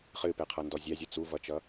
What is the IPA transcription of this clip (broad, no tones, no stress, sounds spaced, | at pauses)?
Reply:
χ ɨ p e qʰ ʌ n d ɔ zʲ æ zʲ ʌ t͡s u v ʌ t͡ʃ ʌ